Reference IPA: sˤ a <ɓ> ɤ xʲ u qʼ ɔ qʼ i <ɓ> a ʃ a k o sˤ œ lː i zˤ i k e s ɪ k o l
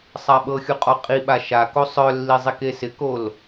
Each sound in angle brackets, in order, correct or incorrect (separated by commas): correct, correct